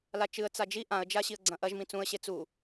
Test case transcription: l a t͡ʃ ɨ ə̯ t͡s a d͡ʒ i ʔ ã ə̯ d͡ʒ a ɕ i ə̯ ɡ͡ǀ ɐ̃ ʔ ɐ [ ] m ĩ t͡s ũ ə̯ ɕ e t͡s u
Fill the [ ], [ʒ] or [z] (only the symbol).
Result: ʒ